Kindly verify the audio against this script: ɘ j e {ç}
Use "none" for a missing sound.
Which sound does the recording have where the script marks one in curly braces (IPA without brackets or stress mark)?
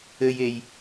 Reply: j